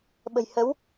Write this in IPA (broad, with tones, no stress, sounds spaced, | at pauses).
ɓ ə̤˨˩ j h ə˨˦ w